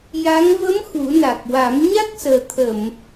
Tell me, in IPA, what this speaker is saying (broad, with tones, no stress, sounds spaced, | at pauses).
j a˧˥ ŋ v ə˧˥ m x u˨˩˦ n a˨˩ k̚ w a˨˩˦ m ɲ a˦˥ k̚ s əː˨˩ t̪ʰ ə˨˩˨ m